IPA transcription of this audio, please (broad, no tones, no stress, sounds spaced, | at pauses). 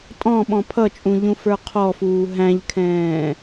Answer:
tʼ ɔ̃ ɓ ɔ̃ pʰ ʌ t͡ʃʼ ũ ʎ ũ f ə˞ qʰ ɔ f uː ɦ æ̃ ʎ kʰ ɛ̃ː